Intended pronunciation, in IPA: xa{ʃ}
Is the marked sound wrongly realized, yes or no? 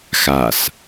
yes